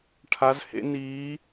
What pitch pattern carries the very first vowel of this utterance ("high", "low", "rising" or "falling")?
rising